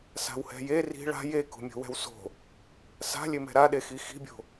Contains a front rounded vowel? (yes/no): no